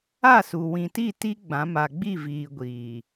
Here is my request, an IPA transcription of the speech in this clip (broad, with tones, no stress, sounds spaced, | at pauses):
a˦˨ s u˨ w ĩ˨ t i˦˨ t i˦ ɡ͡b ã˨˦ m a˨ ɡ͡b i˦˨ v iː˨ ɡʷ iː˨